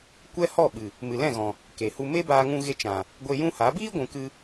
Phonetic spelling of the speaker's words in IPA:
kʷ ɛ˦ h ɔ˦˨ ɓ ɨ˨ | m ɨ˨ l ɛ̃˦˨ ɣ ɔ̃˨ | k e˨ h u˧ m e˦ b aː˧ ŋ ũ˧ ɣ e˧ t͡ʃ ã˨ | ɡʷ e˧ j ũ˦ h a˨˦ b iː˦ ɡʷ ũ˨ k ɨ˧

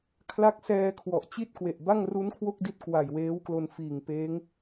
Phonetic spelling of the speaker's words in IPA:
kʰ l a˦˥ k̚ s ɛː˧ kʰ w ɔ˨˩ ʔ t͡ɕ i˥˩ t̚ k w e˨˩ ʔ b a˥˩ ŋ r u˦˥ n kʰ w o˥˩ k̚ d i˦˥ t̚ k w a˨˩ j w eː˦˥ w k l o˧ n f iː˨˩ ŋ p eː˦˥ ŋ

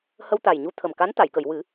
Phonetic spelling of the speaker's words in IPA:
h ə˧ w t̪ a˨˩ j ɲ u˧ t̪ʰ ə˨˩ m k a˧˥ n t̪ a˨˩˨ j k ə˨˩˨ j w ɨ˨˩˦

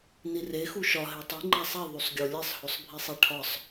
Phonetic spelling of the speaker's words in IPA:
n i r e x u ʃ ɒ ɦ e tˤ i ŋ͡ǃ æ sˤ i ðˤ u sˤ ɡʲ o lʲ e sˤ h o sˤ bʱ i sˤ i ʈʰ ɒ sˤ

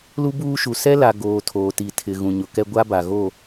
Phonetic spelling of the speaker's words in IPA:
l u˦ b uː˦ ʃ u˨ s ɛ˦ l a˨ ɡ oː˨ tʰ oː˨ t i˨ tʰ ɪ˨ ɣ ũ˨ ɲ ʊ˨ k ɛ˦ ɡʷ a˦ b a˨ ɣ o˦˨

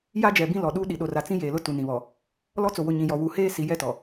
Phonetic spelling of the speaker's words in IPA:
j a˦ d͡ʒ ɛ˨ b ĩ˦ l ɔ˨ ɗ u˦ ɗ i˨ ɗ o˨ r a˨ t͡s ĩ˦ j eː˨ l ʊ˦ t u˨ n ĩ˨ β ɔ˨ | l ɔ˦ t͡s o˨ w ʊ˨ ɲ ĩ˨ j ɔ˨ w u˨˦ h eː˦ s i˨˦ j ɛ˦ t ɔ˨

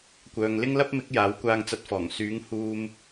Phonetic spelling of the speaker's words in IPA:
kʷ œː˨ ŋ l ɪ˥ ŋ l ɐ˥ p̚ m ɪ˨˥ k̚ j aː˨˥ w kʷ aː˧ ŋ t͡s ɐ˧ t̚ f ɔː˨˩ ŋ s yː˨˥ ŋ h uː˧ m

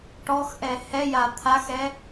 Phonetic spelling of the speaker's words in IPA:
ʈ ɔ x ʔ ɛ h ɛ j a t̪ʰ a x ɛ

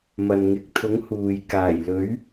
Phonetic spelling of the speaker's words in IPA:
m ɐ˨ n ŋ ɪ˨˥ k̚ t̪ʰ ʊ˨˥ ŋ h uː˨ j k aː˨˩ j l ɵ˨˥ ɥ

